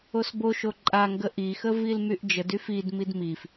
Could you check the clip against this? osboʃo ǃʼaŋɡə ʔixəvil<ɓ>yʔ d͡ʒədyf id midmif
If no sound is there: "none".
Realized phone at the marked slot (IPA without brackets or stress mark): m